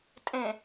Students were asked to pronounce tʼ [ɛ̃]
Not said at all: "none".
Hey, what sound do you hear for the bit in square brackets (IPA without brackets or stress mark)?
ẽ